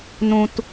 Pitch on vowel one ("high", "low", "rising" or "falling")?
high